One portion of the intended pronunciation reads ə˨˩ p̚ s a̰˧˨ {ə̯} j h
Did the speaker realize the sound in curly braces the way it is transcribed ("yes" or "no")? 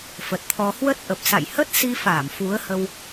no